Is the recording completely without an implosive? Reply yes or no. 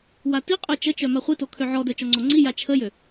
yes